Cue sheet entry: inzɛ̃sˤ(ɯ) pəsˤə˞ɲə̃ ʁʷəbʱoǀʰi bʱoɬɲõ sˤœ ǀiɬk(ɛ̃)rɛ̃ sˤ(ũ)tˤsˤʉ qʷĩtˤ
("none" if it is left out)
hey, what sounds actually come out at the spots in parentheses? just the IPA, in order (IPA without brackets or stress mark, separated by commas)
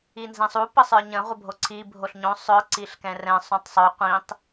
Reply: u, ɛ̃, ũ